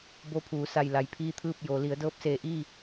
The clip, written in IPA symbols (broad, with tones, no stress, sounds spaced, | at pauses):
b o˧˥ pʰ uː˩˧ s a˧˩ j l a˩ j pʰ iː˥˨ t̪ʰ ɯː˥˨ p̚ j oː˩˧ l i˩˧ ə̯ d ɤː˧˥ p̚ s eː˧˩ ʔ iː˥˨